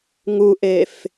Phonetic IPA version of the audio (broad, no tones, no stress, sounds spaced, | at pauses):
ŋ u ʔ e f